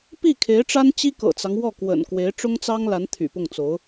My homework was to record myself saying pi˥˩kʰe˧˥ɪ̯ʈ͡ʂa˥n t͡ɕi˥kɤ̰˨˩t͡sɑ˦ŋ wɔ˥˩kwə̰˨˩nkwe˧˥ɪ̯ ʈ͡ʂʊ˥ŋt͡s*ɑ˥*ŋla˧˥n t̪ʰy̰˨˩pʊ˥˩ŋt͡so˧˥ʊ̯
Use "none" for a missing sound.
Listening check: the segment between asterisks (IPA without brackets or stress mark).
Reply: ɑ˥